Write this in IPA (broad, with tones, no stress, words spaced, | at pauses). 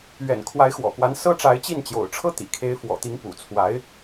ɥɛ̰˨˩nkʰwa˧˥ɪ̯xwɔ̰˨˩kwa˧˥n sɤ˥ʈ͡ʂa˧˥ɪ̯t͡ɕi˥˩n t͡ɕjo̰˨˩ʊ̯ʈ͡ʂʰɤ˥ t̪ḭ˨˩kʰe˧˥ɪ̯fwɔ̰˨˩t̪i˧˥ŋ pṵ˨˩t͡sʰwa˧˥ɪ̯